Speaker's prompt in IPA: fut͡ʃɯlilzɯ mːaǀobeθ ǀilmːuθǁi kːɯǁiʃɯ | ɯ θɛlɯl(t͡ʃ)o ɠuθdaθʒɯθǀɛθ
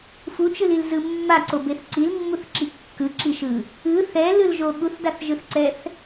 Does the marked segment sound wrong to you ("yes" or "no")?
yes